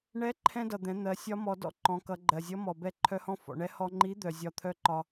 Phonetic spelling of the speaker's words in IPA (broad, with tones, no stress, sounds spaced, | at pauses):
ɳ ɛ˧˥ ǃʰ ɛ̃˥ d ʌ˩ d̪ ɛ̃˩˧ n̪ ɜ˩˧ sʲ ɒ˧˥ m ɔ˩˧ d ɔ̰˥ ǃ ɔ̃˩˧ k ʌ˩˧ ɡ͡ǃ ɜ˩ zʲ ʌ˧˥ m ɔ˩ b ɛ˧˥ ǃʰ œ˧˥ h ɔ̃˥ f ɔ̰˩ ɳ ɛ˧˥ h ɔ˧ ŋ͡ǃ i˧˥ d̪ œ˩ zʲ ɒ˧ t̪ʰ œ˥ ǃ ɒ˧